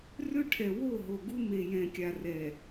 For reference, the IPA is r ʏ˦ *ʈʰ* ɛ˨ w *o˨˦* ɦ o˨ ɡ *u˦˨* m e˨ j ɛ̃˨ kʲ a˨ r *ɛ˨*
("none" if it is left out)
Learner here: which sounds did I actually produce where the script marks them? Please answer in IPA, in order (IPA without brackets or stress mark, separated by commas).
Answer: ʈʰ, o˦˨, u˦, ɛ˨